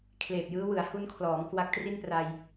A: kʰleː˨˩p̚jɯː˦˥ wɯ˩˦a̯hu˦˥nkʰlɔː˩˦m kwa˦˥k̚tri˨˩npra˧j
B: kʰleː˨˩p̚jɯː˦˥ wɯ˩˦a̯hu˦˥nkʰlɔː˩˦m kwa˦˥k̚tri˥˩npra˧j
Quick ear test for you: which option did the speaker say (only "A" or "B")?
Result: B